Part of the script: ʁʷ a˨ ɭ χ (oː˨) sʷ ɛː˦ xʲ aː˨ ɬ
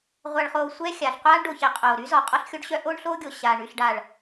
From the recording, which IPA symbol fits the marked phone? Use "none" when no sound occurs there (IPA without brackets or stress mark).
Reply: oː˨